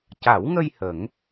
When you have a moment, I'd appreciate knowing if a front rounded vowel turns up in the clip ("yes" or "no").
no